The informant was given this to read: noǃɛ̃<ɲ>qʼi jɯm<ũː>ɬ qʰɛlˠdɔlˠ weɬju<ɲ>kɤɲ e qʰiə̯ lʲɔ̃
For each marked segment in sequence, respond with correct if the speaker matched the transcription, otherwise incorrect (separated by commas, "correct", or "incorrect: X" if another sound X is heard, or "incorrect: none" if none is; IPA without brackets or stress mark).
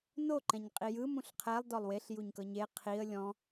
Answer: correct, incorrect: ũ, correct